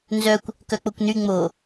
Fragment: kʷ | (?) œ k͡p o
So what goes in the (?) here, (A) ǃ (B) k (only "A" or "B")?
B